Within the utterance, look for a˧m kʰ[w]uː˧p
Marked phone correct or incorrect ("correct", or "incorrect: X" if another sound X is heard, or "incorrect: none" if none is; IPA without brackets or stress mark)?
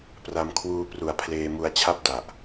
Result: correct